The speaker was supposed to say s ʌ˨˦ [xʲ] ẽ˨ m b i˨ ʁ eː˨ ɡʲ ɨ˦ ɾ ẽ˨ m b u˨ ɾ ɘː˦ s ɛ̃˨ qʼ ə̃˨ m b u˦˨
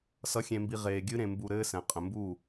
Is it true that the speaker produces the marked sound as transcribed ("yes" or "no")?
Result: yes